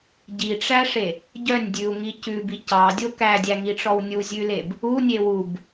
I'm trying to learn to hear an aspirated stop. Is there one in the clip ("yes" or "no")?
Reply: no